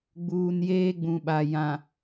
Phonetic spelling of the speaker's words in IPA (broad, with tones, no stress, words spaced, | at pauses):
ɡ͡buː˨njeː˦ɡ͡bũ˨ɓa˨ jã˨